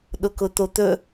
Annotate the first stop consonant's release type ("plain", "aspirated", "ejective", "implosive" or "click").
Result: implosive